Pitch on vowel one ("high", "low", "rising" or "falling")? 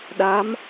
rising